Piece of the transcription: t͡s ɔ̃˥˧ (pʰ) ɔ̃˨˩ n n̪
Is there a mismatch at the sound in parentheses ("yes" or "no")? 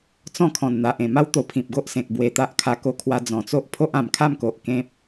yes